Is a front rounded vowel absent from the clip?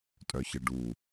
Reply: no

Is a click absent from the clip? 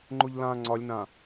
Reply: no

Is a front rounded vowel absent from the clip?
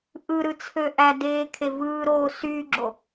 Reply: no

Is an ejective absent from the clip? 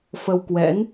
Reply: yes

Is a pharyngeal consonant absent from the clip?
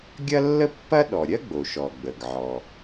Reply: no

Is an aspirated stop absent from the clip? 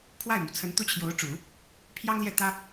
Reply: no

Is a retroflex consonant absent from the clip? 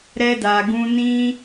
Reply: yes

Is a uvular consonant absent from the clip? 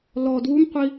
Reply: no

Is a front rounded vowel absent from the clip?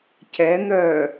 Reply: no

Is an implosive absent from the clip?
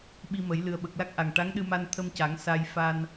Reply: no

